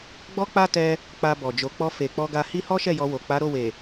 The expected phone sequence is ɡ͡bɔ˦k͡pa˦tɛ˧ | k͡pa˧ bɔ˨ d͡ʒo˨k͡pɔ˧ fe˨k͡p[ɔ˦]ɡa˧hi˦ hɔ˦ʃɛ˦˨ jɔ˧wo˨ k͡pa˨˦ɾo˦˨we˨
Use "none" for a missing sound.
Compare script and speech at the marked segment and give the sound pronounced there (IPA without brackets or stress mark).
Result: ɔ˧